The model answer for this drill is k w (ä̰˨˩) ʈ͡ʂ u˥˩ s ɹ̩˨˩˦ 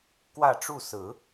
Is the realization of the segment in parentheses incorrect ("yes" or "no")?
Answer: yes